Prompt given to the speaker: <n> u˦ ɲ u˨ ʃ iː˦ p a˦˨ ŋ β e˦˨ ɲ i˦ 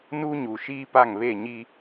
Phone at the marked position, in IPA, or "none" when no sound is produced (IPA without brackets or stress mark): n